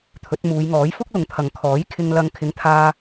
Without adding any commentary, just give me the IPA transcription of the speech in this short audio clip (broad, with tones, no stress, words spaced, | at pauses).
t̪ʰɵ˨˥t̚muː˨˧j ŋɔː˨˥j fʊ˥k̚lʊ˨ŋt̪ʰɐ˨ŋkʰɔː˨˥j kʰɪ˧ŋlɐ˧ŋkʰɪ˨˥ŋt̪ʰaː˧